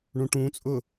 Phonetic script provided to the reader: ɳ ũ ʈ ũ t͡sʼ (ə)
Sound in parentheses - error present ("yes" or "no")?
yes